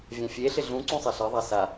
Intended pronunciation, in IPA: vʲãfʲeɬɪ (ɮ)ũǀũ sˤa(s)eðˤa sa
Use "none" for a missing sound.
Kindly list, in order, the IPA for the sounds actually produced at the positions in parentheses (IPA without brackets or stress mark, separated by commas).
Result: ɮ, ɬ